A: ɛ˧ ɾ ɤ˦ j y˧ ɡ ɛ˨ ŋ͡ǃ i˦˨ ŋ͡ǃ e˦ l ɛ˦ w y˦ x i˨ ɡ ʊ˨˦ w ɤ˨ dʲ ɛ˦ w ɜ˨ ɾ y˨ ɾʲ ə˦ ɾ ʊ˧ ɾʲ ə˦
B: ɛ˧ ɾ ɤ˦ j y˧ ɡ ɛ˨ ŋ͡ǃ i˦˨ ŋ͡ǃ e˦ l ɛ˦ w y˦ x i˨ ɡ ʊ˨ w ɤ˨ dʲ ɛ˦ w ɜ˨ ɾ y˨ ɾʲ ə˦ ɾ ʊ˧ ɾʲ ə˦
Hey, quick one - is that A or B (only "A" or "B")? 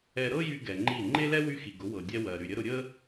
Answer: A